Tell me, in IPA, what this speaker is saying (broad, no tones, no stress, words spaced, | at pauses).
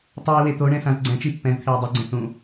tˤuj wet̪oɳɛ̃ sãzɡ͡ǀɛ̃t͡ʃi pːɛ̃zt̪ʰej dˤuɡ͡ǀẽ θũ